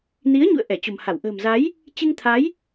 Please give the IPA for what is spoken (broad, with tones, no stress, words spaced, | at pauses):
ni˨˦ə̯ɲṵ˧˨ə̯ ʔɛ˧˩t͡ɕo̤˨˩mha˧˩w ʔə̤ː˨˩mza˨˦j | t͡ɕɨ˧ŋt̪ʰa˨˦j